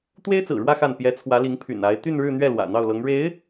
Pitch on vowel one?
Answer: high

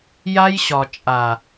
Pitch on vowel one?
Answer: high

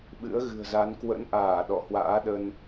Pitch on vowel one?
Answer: rising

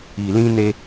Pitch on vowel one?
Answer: low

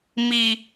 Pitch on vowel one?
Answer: high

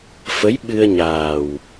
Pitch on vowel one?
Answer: rising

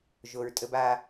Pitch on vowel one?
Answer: low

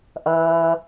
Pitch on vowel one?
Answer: low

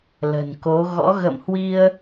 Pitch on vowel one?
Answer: low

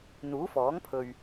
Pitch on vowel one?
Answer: rising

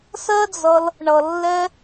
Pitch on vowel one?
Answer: high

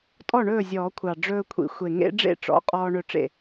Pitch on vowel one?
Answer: falling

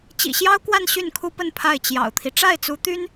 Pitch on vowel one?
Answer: low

